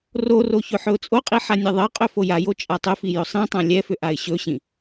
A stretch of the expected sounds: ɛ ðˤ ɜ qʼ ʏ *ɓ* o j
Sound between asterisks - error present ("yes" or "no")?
yes